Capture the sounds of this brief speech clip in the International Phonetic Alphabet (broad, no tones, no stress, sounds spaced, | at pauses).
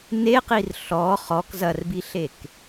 n e q i r ɬ ɔ χ ɔ k z ɐ r b i ɬ e k